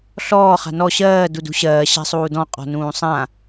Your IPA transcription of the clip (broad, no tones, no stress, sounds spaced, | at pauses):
ɬ ɔː χ a̤ n ɔ ɕ ɜː d u d ṳ ɕ ɜː ɕ a̤ sˤ uː d ɔ̃ qʼ ɔ̤ n ũː sˤ ã